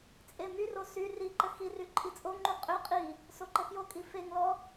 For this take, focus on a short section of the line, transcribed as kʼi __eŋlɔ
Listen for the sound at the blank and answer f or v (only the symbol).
f